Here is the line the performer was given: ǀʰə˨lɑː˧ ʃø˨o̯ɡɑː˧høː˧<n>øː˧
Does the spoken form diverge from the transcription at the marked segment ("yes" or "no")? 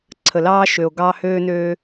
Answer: no